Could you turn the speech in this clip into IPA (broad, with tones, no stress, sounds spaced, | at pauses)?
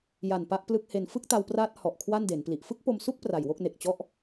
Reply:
j a˨˩ n p a˦˥ ʔ p l ɯ˦˥ k̚ h e˧ n f ɯ˥˩ k̚ t a˧ w p r aː˦˥ t̚ h ɔ˨˩ ʔ kʰ w a˥˩ n d e˩˦ n p l i˨˩ ʔ f ɯ˥˩ k̚ p o˧ m s u˥˩ k̚ p r a˨˩ j w o˥˩ k̚ n e˨˩ k̚ t͡ɕ ɔ˥˩ ʔ